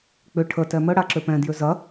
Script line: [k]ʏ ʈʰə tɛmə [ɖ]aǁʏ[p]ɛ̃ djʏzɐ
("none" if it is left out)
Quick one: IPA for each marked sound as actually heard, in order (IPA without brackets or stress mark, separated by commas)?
k͡p, ɽ, p